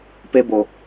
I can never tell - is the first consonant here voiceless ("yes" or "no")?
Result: yes